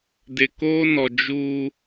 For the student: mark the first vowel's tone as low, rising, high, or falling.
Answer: low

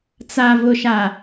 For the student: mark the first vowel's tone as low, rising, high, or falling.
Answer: low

